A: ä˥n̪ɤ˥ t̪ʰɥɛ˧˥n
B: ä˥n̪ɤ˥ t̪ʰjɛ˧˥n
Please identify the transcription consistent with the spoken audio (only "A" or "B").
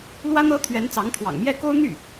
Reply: A